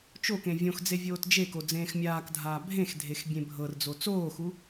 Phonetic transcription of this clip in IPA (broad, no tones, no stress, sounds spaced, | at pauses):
t͡ʃ o k ẽ vʲ õ x d͡z e vʲ oː t d͡ʒ e k o d͡z ẽː x mʲ aː k dʱ aː bʱ ẽ x dʱ e x bʲ ẽ bʱ ɤ r d͡z o t͡s oː x u